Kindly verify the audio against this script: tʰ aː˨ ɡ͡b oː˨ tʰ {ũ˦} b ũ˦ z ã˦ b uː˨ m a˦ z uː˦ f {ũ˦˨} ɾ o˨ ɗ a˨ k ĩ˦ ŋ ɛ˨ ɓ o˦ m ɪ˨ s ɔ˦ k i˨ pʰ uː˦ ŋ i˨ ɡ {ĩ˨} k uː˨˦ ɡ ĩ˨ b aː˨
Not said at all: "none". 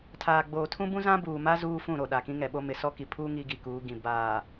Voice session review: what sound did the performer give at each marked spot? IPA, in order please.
ũ˦, ũ˦˨, i˨

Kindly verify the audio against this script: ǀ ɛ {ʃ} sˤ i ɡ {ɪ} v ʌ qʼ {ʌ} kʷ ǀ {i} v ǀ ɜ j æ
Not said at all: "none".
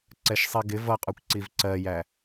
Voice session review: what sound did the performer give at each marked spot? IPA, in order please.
ʃ, ɪ, ɒ, i

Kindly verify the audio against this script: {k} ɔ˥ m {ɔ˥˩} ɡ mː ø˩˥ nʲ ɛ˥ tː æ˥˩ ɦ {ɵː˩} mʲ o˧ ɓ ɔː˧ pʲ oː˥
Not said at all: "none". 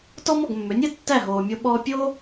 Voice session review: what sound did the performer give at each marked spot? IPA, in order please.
t, ɔ˥˩, oː˩

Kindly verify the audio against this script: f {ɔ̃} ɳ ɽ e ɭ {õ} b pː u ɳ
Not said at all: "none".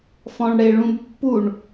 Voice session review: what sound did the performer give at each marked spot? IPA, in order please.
ɔ̃, ũ

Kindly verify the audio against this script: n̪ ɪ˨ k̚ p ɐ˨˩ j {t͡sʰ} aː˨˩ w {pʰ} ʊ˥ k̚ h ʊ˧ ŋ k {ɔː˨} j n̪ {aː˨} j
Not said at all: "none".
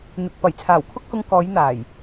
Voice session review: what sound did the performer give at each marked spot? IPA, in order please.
t͡sʰ, kʰ, ɔː˨˧, aː˨˩

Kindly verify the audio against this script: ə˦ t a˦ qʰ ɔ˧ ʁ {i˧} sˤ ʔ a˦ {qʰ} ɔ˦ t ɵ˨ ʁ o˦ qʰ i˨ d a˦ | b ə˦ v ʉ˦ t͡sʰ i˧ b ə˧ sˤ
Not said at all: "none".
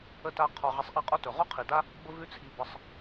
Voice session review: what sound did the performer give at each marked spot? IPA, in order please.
e˧, qʼ

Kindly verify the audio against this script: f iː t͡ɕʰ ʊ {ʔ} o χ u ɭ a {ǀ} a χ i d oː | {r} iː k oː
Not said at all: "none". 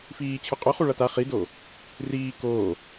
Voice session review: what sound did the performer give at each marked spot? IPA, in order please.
qʼ, t, r

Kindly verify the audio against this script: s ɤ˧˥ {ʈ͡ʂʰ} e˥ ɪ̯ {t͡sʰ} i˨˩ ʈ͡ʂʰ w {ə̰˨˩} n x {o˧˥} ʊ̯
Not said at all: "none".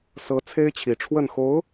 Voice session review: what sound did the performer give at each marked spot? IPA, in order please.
t͡sʰ, t͡ɕʰ, ə˥˩, o˧˥

